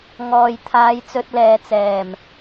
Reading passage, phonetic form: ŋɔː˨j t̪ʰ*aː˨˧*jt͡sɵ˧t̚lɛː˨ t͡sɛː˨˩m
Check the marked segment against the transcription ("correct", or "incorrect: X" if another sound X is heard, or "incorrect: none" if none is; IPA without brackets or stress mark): correct